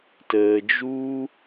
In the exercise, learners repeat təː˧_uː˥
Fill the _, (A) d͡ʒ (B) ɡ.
A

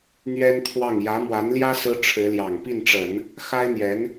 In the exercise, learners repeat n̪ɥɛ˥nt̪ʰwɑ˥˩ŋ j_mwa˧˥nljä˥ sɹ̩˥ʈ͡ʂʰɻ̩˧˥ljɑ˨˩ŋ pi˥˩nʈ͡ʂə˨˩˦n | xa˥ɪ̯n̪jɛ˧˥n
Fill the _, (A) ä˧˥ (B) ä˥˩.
A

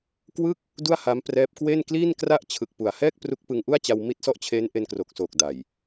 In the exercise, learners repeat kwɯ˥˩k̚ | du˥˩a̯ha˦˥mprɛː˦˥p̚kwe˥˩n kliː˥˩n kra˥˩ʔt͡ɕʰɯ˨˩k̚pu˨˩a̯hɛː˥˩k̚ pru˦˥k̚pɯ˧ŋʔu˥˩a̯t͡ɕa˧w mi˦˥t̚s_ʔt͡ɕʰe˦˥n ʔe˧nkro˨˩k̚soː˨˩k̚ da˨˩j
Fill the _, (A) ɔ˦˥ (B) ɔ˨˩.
A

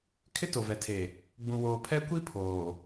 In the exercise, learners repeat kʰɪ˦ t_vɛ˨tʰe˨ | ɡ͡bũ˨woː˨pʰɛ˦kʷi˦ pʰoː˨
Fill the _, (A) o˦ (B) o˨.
B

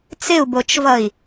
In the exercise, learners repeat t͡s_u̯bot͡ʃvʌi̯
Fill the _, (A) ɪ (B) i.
A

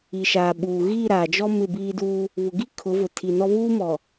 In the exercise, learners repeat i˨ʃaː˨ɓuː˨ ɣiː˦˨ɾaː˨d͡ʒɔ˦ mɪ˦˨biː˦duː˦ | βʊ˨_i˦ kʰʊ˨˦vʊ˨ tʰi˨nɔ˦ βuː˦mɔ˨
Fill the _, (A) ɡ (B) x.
A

